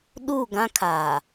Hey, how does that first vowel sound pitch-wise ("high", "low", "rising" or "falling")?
falling